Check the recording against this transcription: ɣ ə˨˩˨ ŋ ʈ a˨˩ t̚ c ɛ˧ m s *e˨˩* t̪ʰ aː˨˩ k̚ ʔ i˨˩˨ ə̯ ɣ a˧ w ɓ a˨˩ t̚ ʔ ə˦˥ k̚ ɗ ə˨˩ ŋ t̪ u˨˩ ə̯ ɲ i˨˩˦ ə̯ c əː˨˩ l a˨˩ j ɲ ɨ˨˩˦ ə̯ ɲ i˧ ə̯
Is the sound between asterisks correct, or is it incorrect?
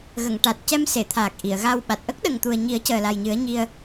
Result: incorrect: e˨˩˨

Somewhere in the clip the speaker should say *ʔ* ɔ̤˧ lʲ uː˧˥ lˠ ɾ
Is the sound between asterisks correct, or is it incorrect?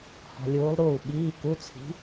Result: incorrect: h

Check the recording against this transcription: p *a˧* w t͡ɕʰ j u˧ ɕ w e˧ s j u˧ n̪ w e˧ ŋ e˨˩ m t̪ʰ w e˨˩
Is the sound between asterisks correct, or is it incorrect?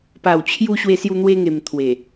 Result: incorrect: a˨˩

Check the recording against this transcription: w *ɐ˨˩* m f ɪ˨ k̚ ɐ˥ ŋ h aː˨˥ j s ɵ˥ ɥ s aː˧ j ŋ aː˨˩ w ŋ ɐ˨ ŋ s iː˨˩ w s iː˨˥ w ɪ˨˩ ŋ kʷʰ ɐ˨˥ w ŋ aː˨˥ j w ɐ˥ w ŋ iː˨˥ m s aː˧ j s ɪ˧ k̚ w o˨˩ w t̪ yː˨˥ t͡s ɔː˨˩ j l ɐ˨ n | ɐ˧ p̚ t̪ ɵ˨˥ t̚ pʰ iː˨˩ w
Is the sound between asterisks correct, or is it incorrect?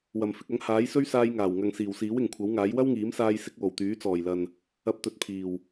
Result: correct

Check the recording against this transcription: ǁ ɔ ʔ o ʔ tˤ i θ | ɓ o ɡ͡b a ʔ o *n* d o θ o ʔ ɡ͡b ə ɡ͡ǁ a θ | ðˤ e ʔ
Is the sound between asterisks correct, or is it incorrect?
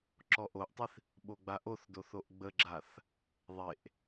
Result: incorrect: θ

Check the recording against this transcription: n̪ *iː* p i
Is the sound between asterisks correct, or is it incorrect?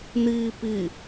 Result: correct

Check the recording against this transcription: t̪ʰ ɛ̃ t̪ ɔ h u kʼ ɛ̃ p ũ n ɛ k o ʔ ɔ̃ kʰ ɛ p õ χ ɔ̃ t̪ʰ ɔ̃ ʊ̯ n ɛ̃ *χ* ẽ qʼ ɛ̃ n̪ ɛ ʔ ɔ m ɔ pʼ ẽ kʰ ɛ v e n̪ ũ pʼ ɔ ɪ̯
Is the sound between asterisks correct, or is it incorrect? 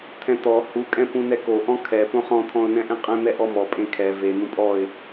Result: incorrect: ʔ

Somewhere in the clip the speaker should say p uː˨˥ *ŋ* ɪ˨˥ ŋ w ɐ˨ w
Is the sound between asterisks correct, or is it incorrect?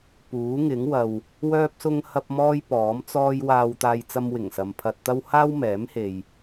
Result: correct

